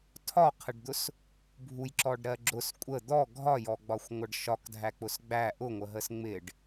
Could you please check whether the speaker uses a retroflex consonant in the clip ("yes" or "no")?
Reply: yes